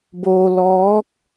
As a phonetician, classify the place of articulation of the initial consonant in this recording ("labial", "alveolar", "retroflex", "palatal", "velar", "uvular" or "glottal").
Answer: labial